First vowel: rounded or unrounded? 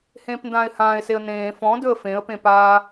unrounded